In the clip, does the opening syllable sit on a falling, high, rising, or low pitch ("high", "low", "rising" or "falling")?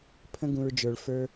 high